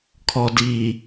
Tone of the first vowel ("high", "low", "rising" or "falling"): low